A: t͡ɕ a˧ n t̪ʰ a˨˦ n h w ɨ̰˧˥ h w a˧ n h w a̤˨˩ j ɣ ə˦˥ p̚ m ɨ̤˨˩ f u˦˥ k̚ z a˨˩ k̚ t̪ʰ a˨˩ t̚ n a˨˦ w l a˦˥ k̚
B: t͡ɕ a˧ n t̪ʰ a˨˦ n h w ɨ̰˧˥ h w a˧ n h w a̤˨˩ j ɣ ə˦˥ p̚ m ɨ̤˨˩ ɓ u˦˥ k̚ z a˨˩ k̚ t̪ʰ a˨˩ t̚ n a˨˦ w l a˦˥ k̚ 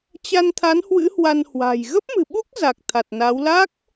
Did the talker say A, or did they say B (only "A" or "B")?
B